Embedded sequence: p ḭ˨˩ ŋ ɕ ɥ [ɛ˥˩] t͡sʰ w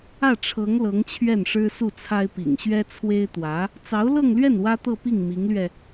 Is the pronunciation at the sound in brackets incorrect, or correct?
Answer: incorrect